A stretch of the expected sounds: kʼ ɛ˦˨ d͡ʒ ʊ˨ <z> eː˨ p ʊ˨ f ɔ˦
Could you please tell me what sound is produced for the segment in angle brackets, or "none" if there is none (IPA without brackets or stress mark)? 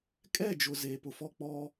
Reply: z